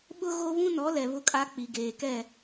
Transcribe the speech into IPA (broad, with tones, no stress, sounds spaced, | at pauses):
ɓ ʊ˦ ɣ o˦ β ũ˦ n ɔ˨˦ l ɛ˨ β ʊ˦ kʼ a˦ k͡p i˨ ɡ eː˨ k ɛ˦˨